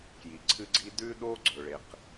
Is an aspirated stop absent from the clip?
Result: no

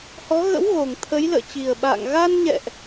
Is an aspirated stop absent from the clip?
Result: no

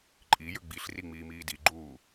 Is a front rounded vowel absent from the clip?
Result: no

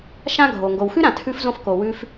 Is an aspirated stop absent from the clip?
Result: no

